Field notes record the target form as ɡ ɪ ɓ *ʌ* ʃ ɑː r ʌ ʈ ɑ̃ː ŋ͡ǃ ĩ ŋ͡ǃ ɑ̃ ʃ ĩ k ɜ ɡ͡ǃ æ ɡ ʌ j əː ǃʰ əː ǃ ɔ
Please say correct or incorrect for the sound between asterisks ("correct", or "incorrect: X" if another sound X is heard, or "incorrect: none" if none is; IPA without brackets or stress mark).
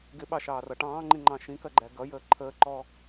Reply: incorrect: ɑ